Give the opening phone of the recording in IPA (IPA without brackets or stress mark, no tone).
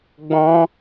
ɡ͡b